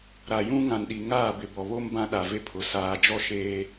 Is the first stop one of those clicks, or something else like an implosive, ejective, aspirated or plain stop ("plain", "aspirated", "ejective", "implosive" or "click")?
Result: implosive